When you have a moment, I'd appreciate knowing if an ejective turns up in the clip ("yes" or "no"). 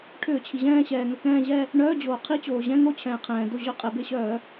yes